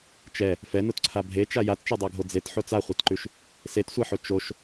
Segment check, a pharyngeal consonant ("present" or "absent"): present